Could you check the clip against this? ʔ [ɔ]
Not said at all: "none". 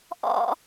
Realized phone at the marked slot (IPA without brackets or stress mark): ɔ̰